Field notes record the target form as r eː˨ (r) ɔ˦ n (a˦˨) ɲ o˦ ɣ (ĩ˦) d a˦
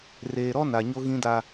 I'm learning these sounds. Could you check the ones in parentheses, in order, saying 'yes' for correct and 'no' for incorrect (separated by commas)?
no, no, yes